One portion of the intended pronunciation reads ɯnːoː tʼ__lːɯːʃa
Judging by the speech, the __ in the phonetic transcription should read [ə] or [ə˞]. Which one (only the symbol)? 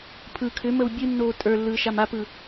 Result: ə˞